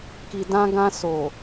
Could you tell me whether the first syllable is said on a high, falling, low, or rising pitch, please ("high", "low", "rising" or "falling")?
low